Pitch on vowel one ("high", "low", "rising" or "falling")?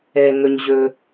low